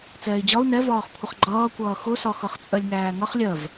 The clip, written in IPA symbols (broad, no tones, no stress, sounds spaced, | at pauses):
t͡s ɛː i̯ d͡ʑ ɒ u̯ n ɛ v ɒː χ kʷʰ ə χ ɡ͡ǃ ʌː kʷ ʌː x ʊ s ɒ x ʌ χ t͡sʼ ɜ lʲ ŋ æː ŋ ʌ χ lʲ ɜ v